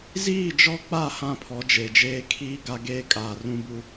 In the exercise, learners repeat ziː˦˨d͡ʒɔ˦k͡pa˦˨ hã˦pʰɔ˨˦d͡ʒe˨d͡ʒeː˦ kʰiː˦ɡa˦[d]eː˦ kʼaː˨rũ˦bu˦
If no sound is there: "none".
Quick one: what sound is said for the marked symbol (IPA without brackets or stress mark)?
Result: ɡ